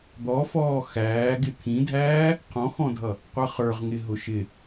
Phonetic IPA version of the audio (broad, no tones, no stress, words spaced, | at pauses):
d̪ɔfɔː xæːɡɪ t̪ʰĩdʱæː | qʰɔ̃xɔ̃dʱʌ | qʷʌχə˞ʁŋɪ ɦʊʃɪ